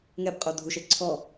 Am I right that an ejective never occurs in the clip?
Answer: no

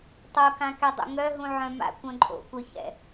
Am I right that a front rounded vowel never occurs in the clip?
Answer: no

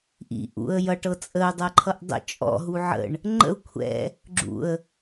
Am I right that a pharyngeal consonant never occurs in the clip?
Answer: no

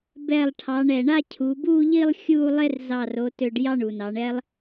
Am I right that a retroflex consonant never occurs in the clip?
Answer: no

